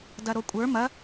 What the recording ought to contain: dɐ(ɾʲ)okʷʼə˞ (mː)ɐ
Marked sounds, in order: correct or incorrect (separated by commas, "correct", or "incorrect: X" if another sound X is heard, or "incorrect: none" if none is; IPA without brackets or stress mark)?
incorrect: ɾ, incorrect: m